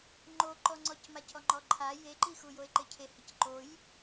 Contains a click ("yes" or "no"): yes